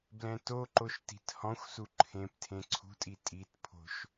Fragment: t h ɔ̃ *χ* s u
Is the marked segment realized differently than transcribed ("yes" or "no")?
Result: yes